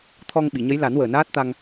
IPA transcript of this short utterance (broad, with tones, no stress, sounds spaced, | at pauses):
t̪ʰ ɔ˧ ŋ ɓ i˨˩˨ ɲ ə˧˥ j l a˨˩˦ n w əː˨˩ n aː˦˥ t̚ t̪ a˧ ŋ